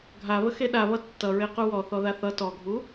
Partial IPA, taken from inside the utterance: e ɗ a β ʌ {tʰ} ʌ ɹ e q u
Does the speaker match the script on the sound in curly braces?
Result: no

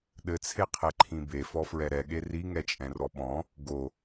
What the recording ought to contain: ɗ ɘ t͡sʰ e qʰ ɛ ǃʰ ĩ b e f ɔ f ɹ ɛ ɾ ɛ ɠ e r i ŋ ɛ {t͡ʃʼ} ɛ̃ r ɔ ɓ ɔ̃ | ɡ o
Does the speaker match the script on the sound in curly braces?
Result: yes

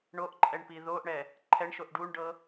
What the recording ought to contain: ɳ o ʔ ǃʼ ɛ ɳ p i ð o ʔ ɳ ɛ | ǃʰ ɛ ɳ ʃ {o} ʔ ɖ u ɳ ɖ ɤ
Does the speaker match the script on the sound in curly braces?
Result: yes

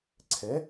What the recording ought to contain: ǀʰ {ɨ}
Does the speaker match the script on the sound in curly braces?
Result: no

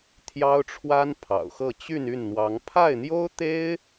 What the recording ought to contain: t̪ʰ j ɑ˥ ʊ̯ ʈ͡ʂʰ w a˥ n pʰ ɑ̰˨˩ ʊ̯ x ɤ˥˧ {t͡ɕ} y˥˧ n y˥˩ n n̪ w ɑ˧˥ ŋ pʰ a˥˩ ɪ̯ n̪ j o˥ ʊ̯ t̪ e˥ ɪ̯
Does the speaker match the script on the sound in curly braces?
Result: yes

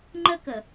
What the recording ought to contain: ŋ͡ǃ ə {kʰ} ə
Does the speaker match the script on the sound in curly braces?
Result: no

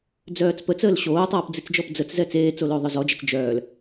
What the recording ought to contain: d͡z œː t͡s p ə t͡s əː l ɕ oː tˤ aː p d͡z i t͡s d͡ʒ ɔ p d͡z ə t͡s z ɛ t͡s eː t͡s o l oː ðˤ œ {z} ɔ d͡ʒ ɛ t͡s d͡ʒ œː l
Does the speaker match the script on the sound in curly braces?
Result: yes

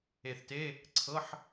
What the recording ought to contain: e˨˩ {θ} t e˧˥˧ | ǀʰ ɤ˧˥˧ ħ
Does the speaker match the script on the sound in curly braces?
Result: yes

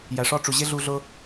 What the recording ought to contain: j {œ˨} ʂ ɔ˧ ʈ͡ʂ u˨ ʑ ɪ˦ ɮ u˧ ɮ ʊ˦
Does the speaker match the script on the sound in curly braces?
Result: no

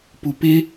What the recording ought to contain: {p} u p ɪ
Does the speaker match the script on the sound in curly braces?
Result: yes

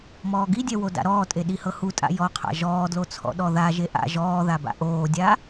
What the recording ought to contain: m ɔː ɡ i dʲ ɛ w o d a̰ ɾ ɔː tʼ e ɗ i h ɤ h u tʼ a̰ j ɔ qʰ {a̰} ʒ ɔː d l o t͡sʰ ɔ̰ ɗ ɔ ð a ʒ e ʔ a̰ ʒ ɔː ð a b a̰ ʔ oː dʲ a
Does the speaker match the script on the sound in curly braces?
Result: yes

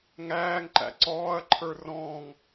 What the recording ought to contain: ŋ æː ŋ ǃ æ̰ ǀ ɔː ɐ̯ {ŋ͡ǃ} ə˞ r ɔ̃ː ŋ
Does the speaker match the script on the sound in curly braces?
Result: no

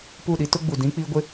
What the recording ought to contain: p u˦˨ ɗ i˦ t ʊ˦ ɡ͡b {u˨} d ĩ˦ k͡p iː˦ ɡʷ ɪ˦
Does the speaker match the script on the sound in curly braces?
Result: yes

